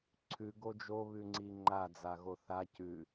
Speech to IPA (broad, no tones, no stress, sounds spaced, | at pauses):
ǀʰ ʉ ɡ o d͡ʒ o β ʉ ŋ͡ǀ i ŋ͡ǃ a d͡z a ɣ o θ a c ʉ